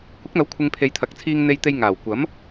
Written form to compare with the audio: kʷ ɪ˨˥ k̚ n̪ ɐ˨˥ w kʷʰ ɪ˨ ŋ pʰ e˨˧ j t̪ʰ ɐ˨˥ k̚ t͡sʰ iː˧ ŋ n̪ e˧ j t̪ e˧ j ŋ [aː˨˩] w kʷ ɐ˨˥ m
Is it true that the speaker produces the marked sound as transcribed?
yes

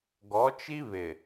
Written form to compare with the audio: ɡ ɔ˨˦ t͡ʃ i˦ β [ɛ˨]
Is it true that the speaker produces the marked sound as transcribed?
no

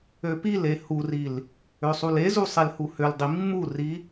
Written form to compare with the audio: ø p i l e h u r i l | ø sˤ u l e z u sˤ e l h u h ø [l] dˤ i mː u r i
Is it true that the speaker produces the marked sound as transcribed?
yes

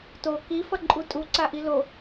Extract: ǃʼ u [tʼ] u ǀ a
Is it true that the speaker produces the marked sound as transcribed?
yes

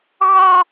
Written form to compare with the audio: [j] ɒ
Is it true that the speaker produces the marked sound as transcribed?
no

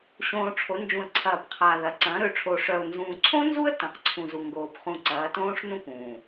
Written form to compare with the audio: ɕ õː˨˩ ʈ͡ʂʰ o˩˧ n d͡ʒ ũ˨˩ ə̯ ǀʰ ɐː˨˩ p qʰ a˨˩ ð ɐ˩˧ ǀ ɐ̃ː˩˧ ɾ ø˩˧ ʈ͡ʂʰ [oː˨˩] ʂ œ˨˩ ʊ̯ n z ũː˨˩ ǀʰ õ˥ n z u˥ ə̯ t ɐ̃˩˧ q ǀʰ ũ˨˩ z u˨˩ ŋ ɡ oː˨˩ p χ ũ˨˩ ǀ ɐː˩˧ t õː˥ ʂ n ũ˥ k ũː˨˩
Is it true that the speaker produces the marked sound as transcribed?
yes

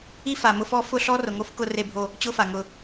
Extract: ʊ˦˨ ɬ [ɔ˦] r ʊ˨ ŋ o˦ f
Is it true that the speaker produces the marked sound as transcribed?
yes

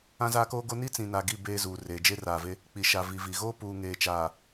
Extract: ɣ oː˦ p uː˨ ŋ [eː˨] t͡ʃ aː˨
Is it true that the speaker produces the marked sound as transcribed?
yes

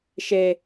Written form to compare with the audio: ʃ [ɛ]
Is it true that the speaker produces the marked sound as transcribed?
no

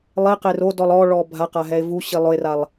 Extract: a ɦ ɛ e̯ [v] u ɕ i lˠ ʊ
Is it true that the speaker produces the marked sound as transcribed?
yes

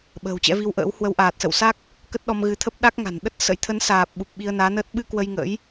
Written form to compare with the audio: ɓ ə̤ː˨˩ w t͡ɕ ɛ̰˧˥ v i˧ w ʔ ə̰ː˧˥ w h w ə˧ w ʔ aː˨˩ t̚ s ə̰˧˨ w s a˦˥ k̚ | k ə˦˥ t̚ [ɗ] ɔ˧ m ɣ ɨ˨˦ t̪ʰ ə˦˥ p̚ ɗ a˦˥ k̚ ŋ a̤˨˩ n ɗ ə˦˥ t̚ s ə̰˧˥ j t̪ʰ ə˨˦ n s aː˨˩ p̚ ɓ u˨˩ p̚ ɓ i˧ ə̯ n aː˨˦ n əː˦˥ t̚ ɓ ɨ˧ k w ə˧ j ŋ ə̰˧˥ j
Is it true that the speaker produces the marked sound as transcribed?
yes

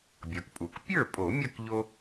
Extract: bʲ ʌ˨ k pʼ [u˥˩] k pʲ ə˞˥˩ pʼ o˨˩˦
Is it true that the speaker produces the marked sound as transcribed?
no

